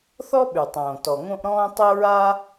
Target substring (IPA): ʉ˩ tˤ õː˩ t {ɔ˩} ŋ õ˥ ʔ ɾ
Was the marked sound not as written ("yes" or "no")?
no